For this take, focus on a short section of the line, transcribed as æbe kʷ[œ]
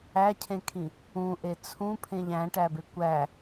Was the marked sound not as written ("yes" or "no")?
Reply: yes